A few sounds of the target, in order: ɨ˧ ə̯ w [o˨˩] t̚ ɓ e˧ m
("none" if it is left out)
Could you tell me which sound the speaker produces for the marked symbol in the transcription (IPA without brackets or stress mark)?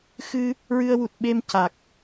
u˨˩